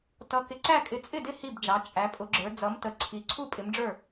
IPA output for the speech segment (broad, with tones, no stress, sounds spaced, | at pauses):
t ʌ˨˦ k ɪ˨˦ ǀ æ˥˨ kʼ ɪ˨˦ t͡sʼ ɪ˥˨ d ɪ˥˨ h i˥˨ b d͡ʒ ɑ˨˦ t͡ʃʼ æ˨˦ pʼ ʊ˨˦ ɡ͡ǁ ə˞˨˦ d͡z ʌ˨˦ m t ə˨˦ ǀʰ i˨˦ ǀʰ u˥˨ pʼ ɪ˨˦ m ɖ͡ʐ ə˞˥˨